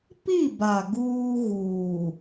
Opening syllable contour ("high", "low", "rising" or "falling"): falling